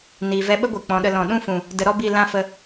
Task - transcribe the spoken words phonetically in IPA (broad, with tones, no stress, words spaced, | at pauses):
ni˨vɛ˧ɓə˦ ɡʷɨ˨k͡pɔ̃˨˦ɗə˧ lɔ̃˨ɗũ˦fũ˨ | də˧ɾɔ˦bi˦˨ lã˦fə˧